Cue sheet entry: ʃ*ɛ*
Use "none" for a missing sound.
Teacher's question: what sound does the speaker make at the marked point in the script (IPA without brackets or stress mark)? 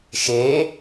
e